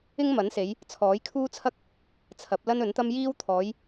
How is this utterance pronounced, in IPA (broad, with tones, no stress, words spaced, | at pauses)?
ɪ˥ŋmɐ˨˥nse˨˧j | t͡sʰɔː˨˥jkʰuː˥t͡sʰɐ˥k̚ | t͡sʰɐ˨˥p̚ lɐ˥nɵ˨˥nt̪ɐ˥m jiː˥w t̪ʰɔː˨˧j